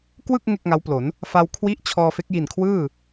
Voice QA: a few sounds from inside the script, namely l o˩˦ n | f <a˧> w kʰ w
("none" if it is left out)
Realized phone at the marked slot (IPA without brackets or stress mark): a˧